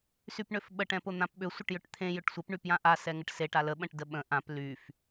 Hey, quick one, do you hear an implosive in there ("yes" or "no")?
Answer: yes